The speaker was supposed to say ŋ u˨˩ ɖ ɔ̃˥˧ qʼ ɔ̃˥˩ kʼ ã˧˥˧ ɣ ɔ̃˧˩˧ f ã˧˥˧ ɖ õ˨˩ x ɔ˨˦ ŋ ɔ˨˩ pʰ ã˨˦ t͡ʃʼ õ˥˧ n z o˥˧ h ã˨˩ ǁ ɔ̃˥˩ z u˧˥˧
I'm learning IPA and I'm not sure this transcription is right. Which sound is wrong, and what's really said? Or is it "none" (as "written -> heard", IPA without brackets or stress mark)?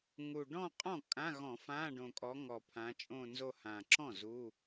x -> kʼ